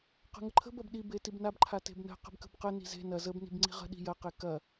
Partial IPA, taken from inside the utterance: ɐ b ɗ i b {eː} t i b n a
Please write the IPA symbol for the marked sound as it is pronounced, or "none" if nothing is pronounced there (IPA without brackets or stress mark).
e